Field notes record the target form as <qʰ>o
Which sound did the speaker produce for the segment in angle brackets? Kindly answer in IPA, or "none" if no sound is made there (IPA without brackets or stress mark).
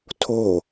tʰ